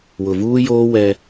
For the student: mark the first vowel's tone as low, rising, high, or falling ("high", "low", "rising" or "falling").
low